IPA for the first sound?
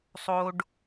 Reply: sˤ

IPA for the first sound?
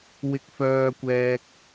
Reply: w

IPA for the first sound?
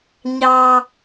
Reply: ɲ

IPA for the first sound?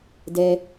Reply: d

